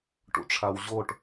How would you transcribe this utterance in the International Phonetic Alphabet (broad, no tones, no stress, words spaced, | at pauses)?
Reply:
ʈṵʈ͡ʂʰawʑoʈ